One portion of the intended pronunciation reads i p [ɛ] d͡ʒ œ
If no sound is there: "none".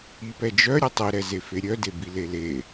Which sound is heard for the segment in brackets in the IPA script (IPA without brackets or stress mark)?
ɛ